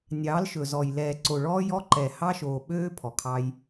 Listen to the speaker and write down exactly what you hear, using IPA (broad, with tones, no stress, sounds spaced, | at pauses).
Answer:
nʲ ɑː˨˦ l ʃ ɵ˨ z ɔ˨ j l ɛː˨ ǀ o˨ ɭ ɔː˦ j ɔ˦ ǃ ɛ˨ h ɑ˦ ʃ oː˨ ɓ øː˦ pʰ ɔ˨ kʰ ɑ˦ j